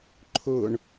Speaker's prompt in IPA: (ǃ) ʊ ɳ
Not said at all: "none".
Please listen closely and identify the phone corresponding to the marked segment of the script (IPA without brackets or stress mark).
ǃʰ